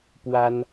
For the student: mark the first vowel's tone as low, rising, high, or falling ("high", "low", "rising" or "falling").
high